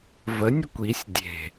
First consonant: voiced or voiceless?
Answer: voiced